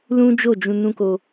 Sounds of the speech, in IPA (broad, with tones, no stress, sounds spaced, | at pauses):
l ũ˦ d͡ʒ o˦˨ d͡ʒ ũ˧ n ũ˦ k o˧